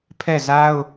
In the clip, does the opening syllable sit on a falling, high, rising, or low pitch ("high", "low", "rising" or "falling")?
falling